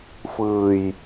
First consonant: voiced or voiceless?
voiceless